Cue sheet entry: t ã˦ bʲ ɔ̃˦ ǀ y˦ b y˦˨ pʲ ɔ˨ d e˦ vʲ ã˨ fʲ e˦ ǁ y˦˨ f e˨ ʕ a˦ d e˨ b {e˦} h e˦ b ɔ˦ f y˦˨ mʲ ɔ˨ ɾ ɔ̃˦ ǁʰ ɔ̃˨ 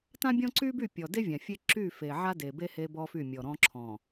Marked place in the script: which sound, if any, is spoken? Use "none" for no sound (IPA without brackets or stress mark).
e˦